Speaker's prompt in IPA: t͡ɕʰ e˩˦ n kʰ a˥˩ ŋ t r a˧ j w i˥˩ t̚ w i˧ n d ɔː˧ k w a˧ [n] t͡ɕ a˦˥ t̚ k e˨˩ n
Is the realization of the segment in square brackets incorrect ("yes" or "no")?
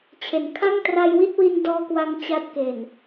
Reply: yes